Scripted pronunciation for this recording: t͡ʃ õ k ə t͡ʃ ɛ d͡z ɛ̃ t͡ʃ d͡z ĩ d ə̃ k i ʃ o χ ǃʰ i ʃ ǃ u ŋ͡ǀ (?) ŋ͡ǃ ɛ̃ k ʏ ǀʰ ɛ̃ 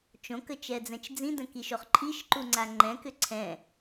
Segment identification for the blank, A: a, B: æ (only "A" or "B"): A